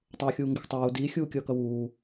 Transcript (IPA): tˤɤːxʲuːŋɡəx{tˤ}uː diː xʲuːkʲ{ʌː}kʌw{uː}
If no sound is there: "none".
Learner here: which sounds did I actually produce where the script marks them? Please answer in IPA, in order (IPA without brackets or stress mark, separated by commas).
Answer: tˤ, ʌː, uː